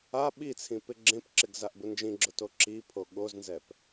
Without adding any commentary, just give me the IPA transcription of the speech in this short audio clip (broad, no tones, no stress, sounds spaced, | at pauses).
a ɓ i t͡sʰ ĩ p ɪ ɡ͡ǁ ẽ p ǁ ɪ ɡ z a ʔ b ʊ n d͡ʒ ĩ ɡ͡ǁ ʊ t o ǁ i pʰ o ɠ o z n z ɛ p